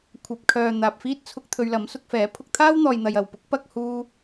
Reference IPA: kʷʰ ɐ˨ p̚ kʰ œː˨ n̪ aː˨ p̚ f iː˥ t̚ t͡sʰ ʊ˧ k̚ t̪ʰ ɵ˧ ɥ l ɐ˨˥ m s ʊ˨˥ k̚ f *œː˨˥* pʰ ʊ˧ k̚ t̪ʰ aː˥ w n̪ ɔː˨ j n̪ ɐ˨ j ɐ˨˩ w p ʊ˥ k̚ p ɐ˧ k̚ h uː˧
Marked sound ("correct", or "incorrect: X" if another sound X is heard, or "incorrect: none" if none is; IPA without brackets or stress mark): incorrect: ɛː˨˥